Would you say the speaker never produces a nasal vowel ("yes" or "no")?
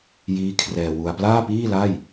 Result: yes